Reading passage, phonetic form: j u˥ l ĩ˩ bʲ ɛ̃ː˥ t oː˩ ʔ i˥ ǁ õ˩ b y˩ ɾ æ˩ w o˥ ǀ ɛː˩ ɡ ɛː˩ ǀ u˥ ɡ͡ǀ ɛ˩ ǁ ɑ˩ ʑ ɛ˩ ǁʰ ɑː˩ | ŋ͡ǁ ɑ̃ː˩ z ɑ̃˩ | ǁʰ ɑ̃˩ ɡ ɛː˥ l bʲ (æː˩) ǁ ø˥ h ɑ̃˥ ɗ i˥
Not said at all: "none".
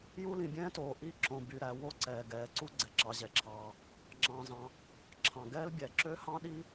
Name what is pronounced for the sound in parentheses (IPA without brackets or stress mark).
æ˩